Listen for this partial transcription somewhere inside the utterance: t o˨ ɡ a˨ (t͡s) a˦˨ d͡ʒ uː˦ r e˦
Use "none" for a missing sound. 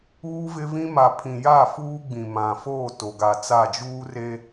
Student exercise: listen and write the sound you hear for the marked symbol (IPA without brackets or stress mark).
t͡s